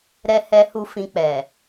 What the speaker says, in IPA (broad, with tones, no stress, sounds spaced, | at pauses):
ɾ ɛ˦ h ɛ˦ h u˦ f ĩ˧ k͡p ɛ˨